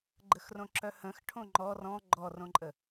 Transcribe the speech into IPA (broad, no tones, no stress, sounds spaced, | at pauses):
ɡ͡ǃ ə x r õ ǁ œ h ə̃ x ʈʰ õ ŋ͡ǃ ɔ r ɔ̃ ɡ͡ǃ ɔ r õ ǃʼ ə